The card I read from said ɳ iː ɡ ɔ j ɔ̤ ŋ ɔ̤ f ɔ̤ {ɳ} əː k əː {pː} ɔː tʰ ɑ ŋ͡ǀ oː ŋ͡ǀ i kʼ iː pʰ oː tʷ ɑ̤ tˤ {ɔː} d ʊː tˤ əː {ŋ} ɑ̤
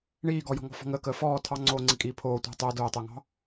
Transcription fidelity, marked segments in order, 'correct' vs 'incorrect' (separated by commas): incorrect, incorrect, incorrect, correct